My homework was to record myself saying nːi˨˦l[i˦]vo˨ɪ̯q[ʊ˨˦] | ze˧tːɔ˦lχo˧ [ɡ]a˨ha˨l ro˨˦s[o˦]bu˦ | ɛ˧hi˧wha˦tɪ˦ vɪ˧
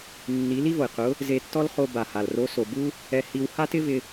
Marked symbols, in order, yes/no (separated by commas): yes, yes, no, no